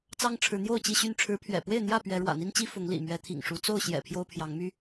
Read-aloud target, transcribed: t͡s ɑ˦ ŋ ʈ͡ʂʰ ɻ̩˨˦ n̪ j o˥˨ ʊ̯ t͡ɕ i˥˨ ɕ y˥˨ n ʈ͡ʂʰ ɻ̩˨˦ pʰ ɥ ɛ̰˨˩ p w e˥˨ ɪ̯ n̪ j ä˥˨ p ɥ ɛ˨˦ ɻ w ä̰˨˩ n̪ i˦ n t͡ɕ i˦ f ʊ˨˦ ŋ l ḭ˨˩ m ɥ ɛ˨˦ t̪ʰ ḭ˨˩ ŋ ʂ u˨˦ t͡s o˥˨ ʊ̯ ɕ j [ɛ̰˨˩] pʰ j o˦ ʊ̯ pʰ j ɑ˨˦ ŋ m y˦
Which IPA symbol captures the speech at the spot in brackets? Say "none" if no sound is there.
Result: ɛ̰˨˩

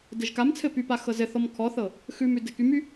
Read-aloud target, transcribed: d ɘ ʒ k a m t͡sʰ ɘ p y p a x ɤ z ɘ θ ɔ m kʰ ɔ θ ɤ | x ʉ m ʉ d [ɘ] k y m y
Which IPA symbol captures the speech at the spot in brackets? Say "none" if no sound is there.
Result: ɘ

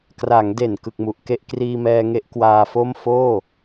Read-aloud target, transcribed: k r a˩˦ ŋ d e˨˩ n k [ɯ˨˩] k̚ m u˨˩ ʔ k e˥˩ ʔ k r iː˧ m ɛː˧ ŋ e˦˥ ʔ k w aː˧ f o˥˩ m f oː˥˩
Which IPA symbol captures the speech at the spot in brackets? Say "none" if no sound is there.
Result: ɯ˨˩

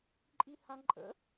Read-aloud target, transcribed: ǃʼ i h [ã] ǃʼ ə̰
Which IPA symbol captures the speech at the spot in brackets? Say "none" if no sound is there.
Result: ã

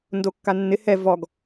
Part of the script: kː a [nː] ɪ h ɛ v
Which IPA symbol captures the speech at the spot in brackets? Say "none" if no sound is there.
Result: nː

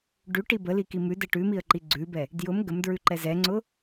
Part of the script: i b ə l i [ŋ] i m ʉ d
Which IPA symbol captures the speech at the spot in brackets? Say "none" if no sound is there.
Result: k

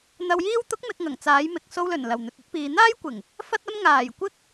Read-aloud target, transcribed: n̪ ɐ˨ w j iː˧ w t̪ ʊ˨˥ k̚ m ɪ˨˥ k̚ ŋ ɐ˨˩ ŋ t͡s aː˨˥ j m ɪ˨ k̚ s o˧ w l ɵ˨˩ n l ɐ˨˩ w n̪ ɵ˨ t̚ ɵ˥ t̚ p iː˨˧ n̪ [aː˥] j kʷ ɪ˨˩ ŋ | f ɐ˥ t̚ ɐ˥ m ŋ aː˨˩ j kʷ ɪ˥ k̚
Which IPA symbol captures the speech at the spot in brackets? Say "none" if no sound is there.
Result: aː˥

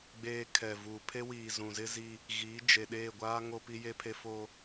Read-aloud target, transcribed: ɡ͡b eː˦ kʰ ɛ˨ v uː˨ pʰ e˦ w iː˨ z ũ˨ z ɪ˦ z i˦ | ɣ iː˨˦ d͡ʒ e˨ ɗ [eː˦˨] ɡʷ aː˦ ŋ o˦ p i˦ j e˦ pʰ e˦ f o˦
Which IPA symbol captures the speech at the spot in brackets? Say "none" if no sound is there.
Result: eː˦˨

